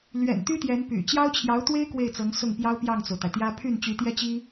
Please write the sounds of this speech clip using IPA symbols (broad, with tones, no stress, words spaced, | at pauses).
lɥɛ̰˨˩nt̪y˥ t̪jɛ˧˥npy̰˨˩ t͡ɕjɑ˥ʊ̯t͡ɕʰjɑ˧˥ʊ̯t̪we˥ɪ̯ kwe˥˩ɪ̯t͡sɤ˧˥ŋ sʊ˥˩ŋpjɑ˥ʊ̯ pjɑ˥˩ŋt͡so˩ʊ̯t̪a˩ɪ̯t̪jä˥ pʰy˥˩nt͡ɕy˧˥t̪jɛ˥t͡ɕi˥